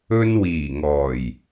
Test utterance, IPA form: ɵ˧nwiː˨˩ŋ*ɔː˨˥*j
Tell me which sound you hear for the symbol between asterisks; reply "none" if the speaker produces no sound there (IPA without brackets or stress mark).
ɔː˨˩